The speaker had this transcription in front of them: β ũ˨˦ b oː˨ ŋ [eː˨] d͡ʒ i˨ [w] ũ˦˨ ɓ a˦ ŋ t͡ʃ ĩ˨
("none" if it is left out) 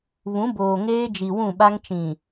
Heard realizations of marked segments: eː˦, w

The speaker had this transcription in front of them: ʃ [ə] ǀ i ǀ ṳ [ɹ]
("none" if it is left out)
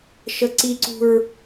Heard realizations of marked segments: ə, ɹ

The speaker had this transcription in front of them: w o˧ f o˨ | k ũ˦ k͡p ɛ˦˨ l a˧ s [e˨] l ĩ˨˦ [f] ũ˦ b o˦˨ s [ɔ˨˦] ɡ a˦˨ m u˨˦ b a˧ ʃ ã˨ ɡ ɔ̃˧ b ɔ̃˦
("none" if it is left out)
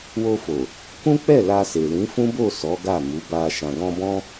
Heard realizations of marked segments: e˨, f, ɔ˨˦

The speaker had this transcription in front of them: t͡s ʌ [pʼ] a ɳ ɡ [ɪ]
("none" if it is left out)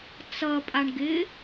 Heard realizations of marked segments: pʼ, ɪ

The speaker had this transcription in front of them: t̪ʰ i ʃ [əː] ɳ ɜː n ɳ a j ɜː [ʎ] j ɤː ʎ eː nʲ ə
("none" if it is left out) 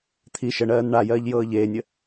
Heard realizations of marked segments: ə, ʎ

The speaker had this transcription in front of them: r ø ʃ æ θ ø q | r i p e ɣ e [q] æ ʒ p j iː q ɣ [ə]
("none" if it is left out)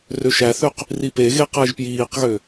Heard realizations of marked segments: q, ø

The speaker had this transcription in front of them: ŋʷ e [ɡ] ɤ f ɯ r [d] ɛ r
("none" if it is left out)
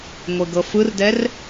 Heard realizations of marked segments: ɡ, d

